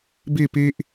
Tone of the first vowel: falling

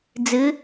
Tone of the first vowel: rising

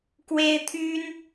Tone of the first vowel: high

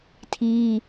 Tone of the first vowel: high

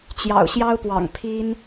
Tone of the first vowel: low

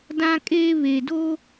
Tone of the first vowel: high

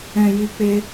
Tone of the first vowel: low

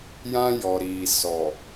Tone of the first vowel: high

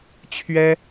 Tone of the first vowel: high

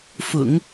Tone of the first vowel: low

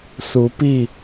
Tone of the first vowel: rising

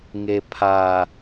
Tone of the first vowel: low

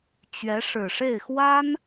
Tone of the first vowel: rising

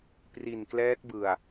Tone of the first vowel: low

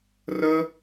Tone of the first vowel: high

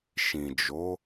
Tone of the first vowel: low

